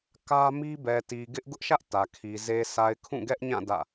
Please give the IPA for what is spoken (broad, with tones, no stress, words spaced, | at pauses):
kä˦ mi˦bɛ˨ti˨ ɡɪ˦ʔ ɡʊ˦ʔʃä˦ʔ tä˨kʰi˨ ze˨sa˨ɪ̯ kʰũ˦˨ɡɛ˦ʔɲã˦˨ dä̰˦˨